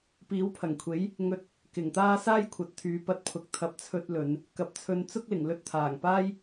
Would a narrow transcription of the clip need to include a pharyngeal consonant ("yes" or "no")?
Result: no